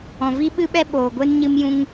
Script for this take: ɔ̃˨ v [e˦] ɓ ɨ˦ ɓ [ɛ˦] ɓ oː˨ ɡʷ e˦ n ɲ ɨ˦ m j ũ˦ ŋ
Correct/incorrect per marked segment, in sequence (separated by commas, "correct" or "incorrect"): incorrect, correct